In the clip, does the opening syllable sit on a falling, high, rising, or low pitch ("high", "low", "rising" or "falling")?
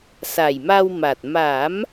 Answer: low